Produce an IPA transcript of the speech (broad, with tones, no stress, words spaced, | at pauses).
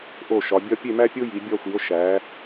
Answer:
ʔo˧˩ʃɒ˩˧ bʲɒ˧ pʲe˥˧mæ˥ pʲo˥ji˩˧ bʲɒ˥˧xʷi˩˧o̯ ʃæ˩˧